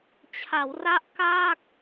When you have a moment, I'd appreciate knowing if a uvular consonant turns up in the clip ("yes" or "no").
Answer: no